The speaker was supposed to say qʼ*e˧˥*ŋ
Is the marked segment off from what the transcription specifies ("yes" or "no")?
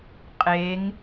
no